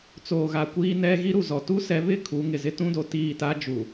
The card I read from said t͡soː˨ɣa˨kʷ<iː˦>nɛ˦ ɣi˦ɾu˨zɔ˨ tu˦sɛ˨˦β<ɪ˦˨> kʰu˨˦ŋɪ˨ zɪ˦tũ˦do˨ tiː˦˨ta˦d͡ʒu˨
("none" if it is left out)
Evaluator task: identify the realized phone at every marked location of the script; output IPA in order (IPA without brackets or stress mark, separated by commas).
iː˦, ɪ˦˨